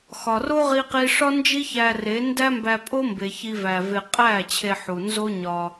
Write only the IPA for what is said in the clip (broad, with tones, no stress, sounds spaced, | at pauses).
x ɒ˨ r o˦ ʁ i˦ q i˦ ʂ ɒ˦ n d͡ʒ i˦ ç æ˧ r e˨˦ n d æ˦ m b æ˧ pʼ o˦ m b e˧ ç i˦ v æ˧ v e˧ qʼ æ˦˨ t͡ɕʰ e˧ ħ u˨ n z o˦ ɲ ɒ˧